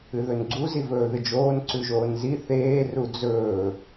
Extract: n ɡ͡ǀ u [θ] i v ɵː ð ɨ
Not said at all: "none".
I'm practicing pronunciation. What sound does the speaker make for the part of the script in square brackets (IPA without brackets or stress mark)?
z